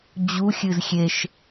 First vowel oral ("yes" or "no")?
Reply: yes